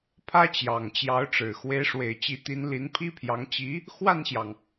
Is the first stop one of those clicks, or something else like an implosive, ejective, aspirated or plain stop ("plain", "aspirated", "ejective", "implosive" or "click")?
aspirated